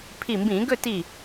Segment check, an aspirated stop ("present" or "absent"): present